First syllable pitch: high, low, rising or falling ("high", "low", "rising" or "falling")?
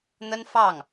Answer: high